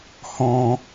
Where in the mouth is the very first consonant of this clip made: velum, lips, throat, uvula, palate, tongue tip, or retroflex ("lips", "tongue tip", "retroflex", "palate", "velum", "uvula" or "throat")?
throat